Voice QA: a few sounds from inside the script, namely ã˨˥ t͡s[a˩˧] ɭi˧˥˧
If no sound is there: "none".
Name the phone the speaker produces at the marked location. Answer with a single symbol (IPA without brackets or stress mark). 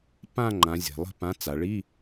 a˩˧